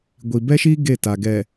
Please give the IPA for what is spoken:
ɡʷ i˨ b ɛ˦ ʃ iː˦ ɡ e˦˨ t a˨ ɡ ɛ˨

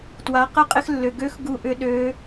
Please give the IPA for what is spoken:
t w a˩˧ q ə˧˥ qʼ ɪ˧ x lː ʏ˩ ɡ ø˧ x ɡ u˧ ʔ ʏ˧˥ ɗ ø˩˧

